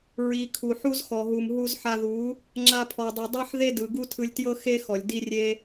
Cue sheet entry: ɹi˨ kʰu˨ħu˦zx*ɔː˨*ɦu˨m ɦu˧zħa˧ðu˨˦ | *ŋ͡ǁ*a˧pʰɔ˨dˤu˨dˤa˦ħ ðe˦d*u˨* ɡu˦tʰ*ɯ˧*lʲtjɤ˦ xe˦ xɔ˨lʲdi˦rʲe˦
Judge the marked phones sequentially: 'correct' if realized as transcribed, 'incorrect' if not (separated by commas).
incorrect, correct, incorrect, correct